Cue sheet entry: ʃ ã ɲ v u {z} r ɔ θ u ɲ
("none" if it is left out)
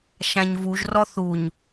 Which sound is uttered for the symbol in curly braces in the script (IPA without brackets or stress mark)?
ʒ